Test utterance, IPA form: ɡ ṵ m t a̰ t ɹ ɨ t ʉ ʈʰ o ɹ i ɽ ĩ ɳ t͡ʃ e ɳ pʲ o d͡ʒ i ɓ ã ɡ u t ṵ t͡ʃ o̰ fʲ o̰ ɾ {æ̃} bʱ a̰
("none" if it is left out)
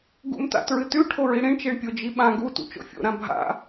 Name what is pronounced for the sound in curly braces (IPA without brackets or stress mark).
ã